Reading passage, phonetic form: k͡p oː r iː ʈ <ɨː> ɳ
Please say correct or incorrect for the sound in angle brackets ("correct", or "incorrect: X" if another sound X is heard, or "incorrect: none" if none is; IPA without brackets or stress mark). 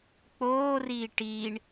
incorrect: iː